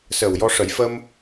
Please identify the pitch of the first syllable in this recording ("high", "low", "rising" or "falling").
low